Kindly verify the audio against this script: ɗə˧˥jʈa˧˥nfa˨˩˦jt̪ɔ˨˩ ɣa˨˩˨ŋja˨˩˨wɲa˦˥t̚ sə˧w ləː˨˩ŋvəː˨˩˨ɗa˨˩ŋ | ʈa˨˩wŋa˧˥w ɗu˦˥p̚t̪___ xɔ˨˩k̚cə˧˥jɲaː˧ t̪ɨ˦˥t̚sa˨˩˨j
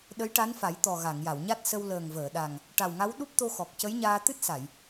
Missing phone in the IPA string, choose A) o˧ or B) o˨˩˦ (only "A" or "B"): A